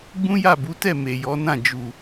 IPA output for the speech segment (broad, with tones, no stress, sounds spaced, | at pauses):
ɡ͡b ũ˦ j a˦˨ b u˨˦ t ɛ˦˨ m e˨ j ɔ˨˦ n ã˦˨ d͡ʒ u˨